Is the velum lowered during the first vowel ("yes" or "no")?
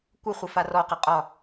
no